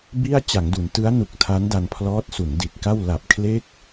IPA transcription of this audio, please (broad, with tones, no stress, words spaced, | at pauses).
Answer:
bi˥˩a̯ t͡ɕa˩˦ŋdu˩˦n tɯ˦˥a̯nu˨˩k̚ tʰa˦˥nda˧npʰlɔː˦˥t̚su˩˦n di˨˩t̚ka˥˩w la˨˩p̚kʰle˦˥k̚